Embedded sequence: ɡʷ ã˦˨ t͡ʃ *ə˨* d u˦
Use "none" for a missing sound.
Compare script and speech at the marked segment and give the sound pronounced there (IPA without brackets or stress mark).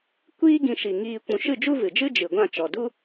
ɔ˨